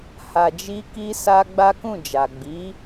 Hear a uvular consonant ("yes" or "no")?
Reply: no